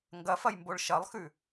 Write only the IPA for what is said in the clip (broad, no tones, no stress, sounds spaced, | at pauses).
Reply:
ŋ ɡ ɐ f ɐ j m b o ɭ ʃ ɐ lˠ x ʉ